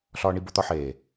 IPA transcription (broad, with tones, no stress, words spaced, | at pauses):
ɬɒː˧ɳi˧bo˧t̪ɒ˧ ħeː˨